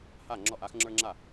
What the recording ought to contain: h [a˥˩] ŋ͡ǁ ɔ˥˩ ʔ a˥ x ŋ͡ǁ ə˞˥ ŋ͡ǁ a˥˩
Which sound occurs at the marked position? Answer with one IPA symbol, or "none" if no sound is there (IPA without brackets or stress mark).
a˥˩